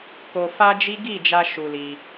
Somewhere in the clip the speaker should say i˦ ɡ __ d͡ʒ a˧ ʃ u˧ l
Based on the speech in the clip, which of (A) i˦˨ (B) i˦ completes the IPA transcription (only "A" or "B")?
A